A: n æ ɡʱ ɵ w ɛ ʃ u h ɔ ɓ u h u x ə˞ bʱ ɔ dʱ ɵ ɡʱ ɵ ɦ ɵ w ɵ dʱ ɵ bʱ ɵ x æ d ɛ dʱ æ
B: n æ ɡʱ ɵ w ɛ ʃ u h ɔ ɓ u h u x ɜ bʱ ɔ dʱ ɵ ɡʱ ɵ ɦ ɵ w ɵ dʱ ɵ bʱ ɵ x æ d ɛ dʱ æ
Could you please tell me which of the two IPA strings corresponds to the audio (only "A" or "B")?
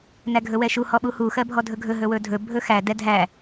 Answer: B